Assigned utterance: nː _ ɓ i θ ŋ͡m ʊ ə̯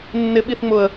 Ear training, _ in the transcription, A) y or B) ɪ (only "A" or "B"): B